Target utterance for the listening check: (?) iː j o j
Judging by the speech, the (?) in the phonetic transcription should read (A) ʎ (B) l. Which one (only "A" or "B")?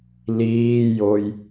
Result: B